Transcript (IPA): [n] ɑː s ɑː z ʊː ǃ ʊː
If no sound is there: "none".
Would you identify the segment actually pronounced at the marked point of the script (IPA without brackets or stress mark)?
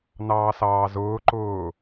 n